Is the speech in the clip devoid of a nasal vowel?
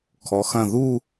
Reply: no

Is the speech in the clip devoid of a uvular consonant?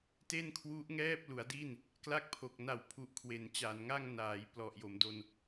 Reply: yes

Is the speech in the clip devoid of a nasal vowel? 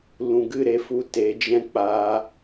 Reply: no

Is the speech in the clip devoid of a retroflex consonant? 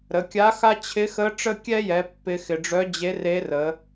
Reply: no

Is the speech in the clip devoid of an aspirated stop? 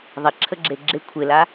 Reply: no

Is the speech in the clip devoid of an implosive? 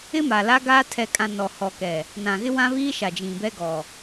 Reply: yes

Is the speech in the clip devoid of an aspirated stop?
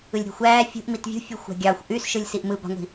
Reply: yes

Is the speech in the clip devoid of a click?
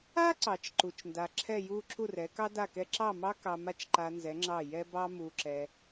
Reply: no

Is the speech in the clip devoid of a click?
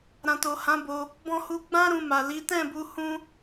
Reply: yes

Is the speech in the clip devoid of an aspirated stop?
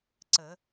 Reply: yes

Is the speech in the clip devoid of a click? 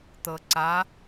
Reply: no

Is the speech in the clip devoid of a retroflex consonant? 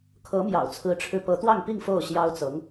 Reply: no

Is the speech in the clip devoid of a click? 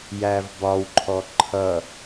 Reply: no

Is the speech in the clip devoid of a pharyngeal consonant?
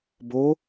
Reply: yes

